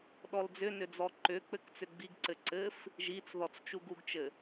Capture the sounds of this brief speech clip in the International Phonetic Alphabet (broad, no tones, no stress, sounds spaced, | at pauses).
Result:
ɗ ɔ l d͡z ʏ n ʏ d͡z ɔ ǃ ʏ k͡p ɘ k t͡s ʏ ɡ͡b i ɡ ǀ ɘ ǀ ɘ f | ʒ i t͡s ð ɔ t͡s t͡ʃ u ɡ u ɡ t͡ʃ ɘ